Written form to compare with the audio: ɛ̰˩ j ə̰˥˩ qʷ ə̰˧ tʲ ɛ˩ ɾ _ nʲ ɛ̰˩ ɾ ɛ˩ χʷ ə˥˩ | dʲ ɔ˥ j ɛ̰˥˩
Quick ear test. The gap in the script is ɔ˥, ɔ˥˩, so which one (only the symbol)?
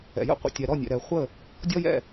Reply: ɔ˥˩